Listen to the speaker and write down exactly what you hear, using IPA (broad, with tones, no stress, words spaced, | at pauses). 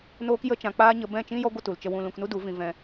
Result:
noː˦kjə˦t͡ʃã˧ k͡paː˦ɲə˧ bɛ̃˦˨t͡ʃĩ˦jɔ˦ ɡʷə˦tu˨lt͡ʃə˧wũ˧ lũ˧knu˦du˨˦vĩ˧ vɛ̃˧